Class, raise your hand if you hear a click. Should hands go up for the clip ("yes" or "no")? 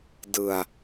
no